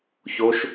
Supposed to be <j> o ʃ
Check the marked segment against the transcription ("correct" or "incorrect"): incorrect